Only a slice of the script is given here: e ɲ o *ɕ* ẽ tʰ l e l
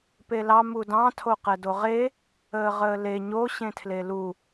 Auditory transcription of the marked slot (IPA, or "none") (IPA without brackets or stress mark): ɕ